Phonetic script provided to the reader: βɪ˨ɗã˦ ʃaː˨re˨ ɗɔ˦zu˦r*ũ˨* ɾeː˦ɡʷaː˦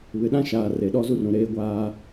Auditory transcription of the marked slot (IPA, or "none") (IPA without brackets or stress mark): ũ˨